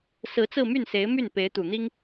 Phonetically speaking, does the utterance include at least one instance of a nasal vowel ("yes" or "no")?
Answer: no